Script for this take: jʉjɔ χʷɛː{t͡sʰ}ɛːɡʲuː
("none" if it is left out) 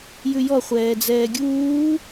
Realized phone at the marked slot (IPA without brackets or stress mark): d͡z